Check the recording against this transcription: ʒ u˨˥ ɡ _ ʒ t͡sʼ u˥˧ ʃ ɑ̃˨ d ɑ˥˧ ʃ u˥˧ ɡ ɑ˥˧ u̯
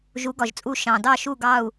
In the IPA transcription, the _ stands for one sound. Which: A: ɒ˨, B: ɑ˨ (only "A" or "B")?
A